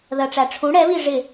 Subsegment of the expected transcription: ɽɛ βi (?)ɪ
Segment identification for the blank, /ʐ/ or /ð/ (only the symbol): ʐ